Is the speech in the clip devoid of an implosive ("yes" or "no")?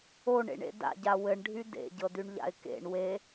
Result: yes